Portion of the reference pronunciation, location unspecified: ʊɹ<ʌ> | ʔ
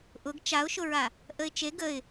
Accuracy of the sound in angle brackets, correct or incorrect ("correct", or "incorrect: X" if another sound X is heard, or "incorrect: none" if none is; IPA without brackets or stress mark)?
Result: incorrect: a